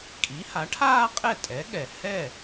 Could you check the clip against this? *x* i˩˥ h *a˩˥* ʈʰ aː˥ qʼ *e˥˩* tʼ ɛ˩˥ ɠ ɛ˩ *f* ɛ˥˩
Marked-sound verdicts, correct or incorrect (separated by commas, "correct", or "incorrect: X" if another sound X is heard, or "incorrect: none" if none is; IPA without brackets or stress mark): incorrect: kʼ, correct, incorrect: ɛ˥˩, incorrect: h